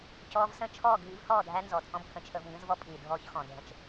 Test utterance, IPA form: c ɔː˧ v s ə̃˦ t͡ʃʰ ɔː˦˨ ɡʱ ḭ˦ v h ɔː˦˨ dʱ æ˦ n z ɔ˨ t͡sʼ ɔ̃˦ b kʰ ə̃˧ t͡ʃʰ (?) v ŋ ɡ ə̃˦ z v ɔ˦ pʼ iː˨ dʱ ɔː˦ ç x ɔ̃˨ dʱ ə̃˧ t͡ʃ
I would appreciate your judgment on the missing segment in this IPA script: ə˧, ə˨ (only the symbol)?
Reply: ə˧